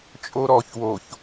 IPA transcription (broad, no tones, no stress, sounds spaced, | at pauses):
t͡ʃʼ o ɾ ɔ ç w o ç